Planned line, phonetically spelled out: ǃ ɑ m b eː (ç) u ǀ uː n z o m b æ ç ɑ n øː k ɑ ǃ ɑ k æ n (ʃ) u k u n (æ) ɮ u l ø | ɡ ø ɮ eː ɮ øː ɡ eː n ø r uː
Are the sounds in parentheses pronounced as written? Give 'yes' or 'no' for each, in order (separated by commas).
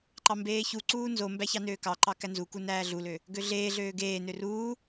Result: yes, no, no